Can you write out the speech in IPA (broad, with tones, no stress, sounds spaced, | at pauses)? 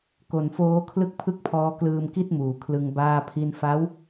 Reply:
k o˨˩ n f oː˦˥ kʰ l ɯ˥˩ k̚ pʰ ɯ˥˩ k̚ pʰ ɔː˦˥ k l ɯː˧ m k i˥˩ t̚ m uː˨˩ kʰ l ɯ˧ ŋ b aː˥˩ pʰ i˥˩ n f a˦˥ w